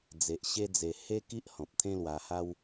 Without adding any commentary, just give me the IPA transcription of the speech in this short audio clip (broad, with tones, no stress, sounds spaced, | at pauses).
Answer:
d͡z e˨ ʔ ɕ e˦ d͡z e˧ h e˦ k i˦ ʔ h ɔ̃˨ p̚ t̪ʰ ẽ˦ l w a˧ h a˦ w